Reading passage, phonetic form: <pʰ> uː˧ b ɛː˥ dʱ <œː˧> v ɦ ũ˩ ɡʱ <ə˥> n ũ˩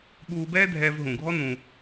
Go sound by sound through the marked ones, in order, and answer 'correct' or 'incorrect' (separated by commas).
incorrect, incorrect, incorrect